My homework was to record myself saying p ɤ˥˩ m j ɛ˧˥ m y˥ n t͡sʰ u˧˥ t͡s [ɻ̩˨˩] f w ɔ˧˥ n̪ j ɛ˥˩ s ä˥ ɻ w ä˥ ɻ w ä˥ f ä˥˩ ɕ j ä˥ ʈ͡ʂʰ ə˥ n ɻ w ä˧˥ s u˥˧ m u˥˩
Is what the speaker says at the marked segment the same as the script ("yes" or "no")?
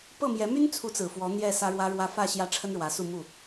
no